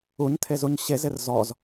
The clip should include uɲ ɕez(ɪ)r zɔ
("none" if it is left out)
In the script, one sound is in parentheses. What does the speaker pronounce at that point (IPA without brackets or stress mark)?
ɪ